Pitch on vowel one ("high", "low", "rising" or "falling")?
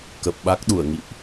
low